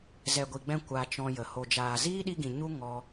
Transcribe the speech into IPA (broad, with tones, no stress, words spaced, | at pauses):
zɛ˨ɡʷi˨ɡ͡bɛ̃˧ kʷa˧t͡ʃɔ̃˧jə˨ ho˨d͡ʒaː˨ ziː˦ɗi˧ɡĩ˨ ɲu˧ ŋɔ˦